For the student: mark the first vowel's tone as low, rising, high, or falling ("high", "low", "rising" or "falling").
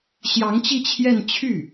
rising